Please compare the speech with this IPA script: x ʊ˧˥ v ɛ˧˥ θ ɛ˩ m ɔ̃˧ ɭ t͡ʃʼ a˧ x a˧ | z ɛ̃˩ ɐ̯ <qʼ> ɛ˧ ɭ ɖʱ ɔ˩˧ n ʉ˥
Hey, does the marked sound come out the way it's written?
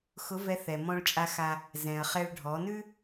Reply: no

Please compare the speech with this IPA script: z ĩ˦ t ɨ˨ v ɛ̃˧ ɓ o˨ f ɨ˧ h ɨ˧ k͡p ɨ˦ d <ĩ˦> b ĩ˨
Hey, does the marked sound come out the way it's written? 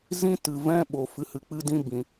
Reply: yes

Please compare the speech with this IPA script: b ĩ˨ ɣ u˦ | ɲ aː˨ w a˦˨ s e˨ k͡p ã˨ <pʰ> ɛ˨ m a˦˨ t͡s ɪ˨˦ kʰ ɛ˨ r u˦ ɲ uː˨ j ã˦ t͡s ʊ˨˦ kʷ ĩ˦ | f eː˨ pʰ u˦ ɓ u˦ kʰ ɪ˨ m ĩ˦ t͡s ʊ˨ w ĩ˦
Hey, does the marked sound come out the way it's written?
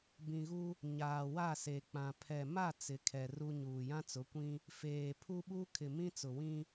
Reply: yes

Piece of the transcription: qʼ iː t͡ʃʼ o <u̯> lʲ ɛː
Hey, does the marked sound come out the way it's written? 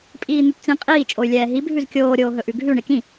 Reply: no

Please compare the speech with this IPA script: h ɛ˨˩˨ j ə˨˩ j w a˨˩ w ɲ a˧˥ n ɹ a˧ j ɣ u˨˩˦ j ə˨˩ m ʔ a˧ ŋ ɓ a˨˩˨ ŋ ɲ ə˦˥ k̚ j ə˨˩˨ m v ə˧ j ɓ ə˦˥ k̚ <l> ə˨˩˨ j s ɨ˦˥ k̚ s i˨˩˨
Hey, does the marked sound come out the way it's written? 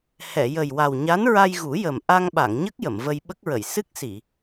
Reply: no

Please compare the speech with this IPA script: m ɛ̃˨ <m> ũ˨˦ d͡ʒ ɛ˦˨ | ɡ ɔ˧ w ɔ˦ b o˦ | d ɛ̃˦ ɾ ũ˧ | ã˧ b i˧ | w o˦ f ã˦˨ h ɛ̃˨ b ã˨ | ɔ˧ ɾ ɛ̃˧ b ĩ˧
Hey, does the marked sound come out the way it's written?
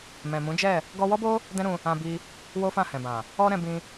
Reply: yes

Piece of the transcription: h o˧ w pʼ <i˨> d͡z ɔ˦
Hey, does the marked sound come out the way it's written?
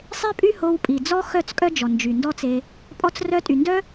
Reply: yes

